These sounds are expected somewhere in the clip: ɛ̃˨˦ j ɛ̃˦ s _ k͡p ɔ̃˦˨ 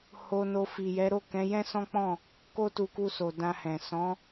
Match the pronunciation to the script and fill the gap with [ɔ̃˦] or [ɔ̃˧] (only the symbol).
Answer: ɔ̃˦